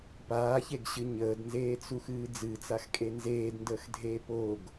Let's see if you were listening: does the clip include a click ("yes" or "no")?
no